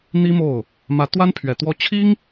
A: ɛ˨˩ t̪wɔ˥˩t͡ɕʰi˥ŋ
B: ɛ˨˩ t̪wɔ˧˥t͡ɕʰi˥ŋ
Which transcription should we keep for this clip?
A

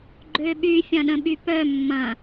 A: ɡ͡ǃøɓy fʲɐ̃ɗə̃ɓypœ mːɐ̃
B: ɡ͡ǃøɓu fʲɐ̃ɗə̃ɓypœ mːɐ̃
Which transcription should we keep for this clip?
A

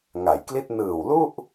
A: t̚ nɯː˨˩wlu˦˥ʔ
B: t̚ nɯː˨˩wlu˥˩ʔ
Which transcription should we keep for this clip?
B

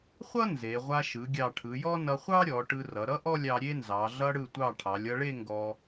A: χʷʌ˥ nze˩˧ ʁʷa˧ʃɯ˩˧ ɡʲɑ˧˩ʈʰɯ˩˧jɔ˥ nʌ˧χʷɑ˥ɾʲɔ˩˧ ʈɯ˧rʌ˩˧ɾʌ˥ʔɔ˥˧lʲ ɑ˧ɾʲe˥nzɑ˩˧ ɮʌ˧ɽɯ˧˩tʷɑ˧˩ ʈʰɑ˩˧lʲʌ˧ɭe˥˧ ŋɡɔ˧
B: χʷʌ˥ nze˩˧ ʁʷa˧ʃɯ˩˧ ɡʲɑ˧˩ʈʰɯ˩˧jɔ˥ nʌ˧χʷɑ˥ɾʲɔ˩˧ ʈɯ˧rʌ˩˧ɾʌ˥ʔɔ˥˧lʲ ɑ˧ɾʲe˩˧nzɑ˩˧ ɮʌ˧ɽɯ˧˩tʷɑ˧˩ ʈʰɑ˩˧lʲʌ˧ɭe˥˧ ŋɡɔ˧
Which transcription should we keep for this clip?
A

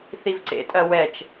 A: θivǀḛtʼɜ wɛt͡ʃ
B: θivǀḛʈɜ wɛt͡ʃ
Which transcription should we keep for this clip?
A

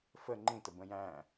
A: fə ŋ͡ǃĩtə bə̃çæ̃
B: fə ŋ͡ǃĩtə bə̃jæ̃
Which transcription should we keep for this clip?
B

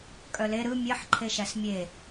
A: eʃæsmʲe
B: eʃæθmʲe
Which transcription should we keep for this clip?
A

